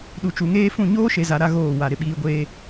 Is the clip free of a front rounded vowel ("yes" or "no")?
yes